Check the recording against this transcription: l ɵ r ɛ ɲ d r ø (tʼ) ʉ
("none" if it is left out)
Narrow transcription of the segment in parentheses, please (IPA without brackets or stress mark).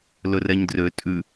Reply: tʼ